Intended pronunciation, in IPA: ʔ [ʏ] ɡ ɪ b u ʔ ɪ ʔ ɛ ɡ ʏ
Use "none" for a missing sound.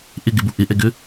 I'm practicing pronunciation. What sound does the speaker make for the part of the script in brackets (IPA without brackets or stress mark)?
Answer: ɪ